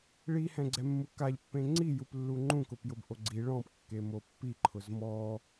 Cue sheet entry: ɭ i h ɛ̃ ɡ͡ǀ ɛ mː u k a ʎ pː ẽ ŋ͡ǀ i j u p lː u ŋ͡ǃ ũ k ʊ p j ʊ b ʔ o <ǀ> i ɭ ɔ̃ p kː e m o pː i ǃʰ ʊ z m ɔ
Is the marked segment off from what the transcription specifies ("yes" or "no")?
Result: yes